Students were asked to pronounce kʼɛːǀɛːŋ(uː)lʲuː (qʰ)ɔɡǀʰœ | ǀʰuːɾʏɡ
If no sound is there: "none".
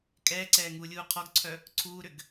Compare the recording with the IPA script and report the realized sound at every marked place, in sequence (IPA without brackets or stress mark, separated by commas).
uː, qʰ